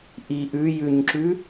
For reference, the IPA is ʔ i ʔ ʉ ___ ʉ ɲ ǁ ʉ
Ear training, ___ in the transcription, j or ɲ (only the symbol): j